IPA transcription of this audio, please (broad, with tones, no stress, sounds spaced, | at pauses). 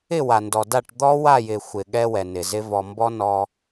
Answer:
ɪ˦˨ w a˨ n d ɔ˨ d a˦˨ ʈ d̪ ɔ˦ w a˦˨ j ɪ˨ xʷ ɪ˨ ɠ ɛ˦ w ɛ˨ n ɪ˨ z ɪ˦ v ɔ˨ m b ɔ˦ n ɔ˦